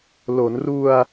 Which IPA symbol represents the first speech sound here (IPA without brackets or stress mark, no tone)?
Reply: l